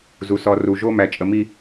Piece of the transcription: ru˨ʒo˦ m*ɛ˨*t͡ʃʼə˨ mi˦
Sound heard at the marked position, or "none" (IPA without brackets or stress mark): æ˨